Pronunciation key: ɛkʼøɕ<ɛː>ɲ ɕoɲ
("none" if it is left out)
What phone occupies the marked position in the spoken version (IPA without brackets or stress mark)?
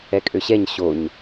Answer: ɛ